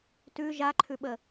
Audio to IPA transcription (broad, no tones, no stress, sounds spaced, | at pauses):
t ʉ ʒ a ǃʰ ʉ ɓ ə